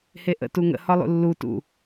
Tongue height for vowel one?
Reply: mid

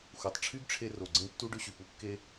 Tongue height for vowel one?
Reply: high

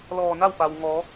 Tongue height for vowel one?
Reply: mid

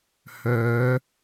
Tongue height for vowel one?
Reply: mid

